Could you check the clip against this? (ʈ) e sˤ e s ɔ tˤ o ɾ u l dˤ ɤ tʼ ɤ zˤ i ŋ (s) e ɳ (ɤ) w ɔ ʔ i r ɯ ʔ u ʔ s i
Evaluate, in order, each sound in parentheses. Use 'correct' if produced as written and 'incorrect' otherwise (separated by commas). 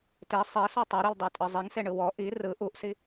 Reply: incorrect, correct, incorrect